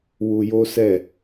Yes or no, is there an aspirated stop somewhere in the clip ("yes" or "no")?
no